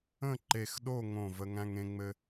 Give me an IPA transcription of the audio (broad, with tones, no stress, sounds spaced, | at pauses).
ə̃˥˧ ǃ e˧˩ x ɗ o˥˧ ŋ õ˧˩ v ə˧ ŋ æ̃˧ ŋ ẽ˧ ŋ͡m ɘ˧